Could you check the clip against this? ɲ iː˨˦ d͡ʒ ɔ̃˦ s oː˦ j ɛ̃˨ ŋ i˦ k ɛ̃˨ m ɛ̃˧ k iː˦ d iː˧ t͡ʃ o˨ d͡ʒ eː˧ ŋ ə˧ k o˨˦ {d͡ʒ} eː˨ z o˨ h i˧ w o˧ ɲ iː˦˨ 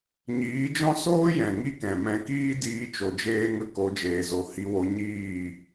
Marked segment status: correct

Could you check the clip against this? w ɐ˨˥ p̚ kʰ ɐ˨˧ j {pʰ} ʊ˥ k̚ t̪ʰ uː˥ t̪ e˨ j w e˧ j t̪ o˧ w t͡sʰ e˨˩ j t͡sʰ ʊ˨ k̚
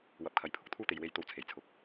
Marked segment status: correct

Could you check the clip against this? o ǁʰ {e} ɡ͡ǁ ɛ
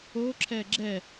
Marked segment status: incorrect: ɛ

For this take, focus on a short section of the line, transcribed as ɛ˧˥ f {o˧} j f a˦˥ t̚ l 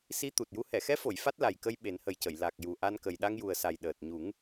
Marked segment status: incorrect: o˨˩˨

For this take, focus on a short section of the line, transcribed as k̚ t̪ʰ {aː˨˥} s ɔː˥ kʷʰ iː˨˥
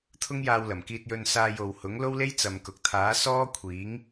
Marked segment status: correct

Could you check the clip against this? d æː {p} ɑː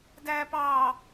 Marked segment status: correct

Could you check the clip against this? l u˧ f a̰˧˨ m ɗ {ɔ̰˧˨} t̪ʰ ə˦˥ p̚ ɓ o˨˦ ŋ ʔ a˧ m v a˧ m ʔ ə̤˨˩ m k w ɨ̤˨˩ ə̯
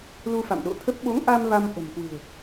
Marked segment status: incorrect: o̰˧˨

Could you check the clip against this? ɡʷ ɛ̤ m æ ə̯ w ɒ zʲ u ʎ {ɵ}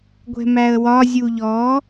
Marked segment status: incorrect: ɔ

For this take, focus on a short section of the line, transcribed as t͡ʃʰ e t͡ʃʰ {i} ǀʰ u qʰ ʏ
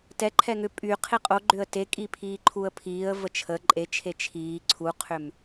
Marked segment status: incorrect: iː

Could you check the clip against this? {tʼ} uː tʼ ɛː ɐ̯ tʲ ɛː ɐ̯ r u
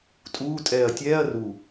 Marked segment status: correct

